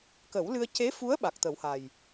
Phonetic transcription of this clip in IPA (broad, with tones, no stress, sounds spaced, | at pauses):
k ə˨˩˦ w l ɨ˧ ə̯ c e˧˥ f u˧˥ ə̯ ɓ a˨˩ k̚ t̪ ə˨˩˦ w h a˨˩ j